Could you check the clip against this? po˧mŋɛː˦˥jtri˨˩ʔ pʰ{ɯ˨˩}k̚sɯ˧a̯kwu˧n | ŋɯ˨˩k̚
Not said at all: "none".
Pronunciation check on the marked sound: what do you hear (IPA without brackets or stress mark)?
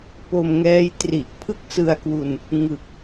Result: ɯ˥˩